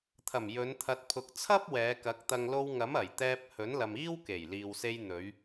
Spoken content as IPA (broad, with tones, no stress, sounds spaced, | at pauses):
t̪ʰ ɐ˨˩ m j ɵ˨˧ n t̪ʰ ɐ˨ t̚ pʰ ʊ˨ k̚ t͡sʰ ɐ˥ p̚ w ɛː˨˧ k ɐ˨˥ k̚ t̪ ɐ˨ ŋ l o˧ w ŋ ɐ˨˥ m ɐ˨˩ j t̪ ɛː˧ p̚ h ɵ˨˥ n l ɐ˨ m iː˥ w k e˨˩ j l iː˨ w s e˧ j n̪ ɵ˨˧ ɥ